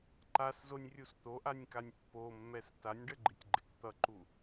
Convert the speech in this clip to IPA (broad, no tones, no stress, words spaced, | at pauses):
ǃaszonʲrʲus t̪oʔanʲkanʲ pːomːɛs tanʲɖəɡ͡ǃɪtʲɡ͡ǃɪk t̪ʌǃu